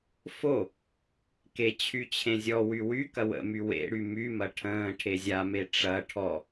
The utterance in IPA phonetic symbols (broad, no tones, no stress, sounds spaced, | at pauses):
f o | k e t͡ɕʰ y t͡ɕʰ ẽ zʲ ɔ w y w y k ɐ w ə̰ m y w ḛ ɽ y m y m ɐ ʈʰ ə̃ː ʈʰ e zʲ a m e ʈ͡ʂ ɐ ʈʰ ɔ